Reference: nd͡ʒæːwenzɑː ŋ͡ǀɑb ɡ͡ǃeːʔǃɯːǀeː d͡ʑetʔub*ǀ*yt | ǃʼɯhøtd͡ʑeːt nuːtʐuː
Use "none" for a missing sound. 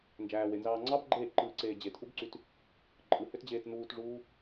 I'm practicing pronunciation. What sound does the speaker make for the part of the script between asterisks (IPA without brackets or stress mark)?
ǀ